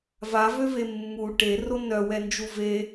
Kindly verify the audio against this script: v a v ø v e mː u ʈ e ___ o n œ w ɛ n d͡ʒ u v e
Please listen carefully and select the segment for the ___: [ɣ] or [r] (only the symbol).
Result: r